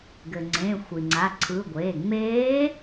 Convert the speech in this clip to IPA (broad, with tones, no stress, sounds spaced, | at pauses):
ɡ ɘ˩ ŋ͡ǀ ẽ˩˧˩ xʷ i˩ ŋ͡ǀ a˩˧˩ ǀʰ ɯ˩˧˩ ɡʷ eː˩˧˩ ŋ͡m eː˧˥